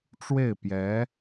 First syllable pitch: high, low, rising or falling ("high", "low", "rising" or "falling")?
falling